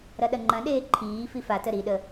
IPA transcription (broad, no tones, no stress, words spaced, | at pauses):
ɾɐɗɐŋ͡ǃɐ̃ɗeː ǃʰiː fifatə ɾiɗə